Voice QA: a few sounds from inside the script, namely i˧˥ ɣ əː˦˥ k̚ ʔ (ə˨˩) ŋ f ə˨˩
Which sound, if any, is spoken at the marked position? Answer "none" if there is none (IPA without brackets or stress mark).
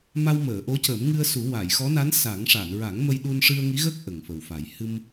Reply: ə˨˩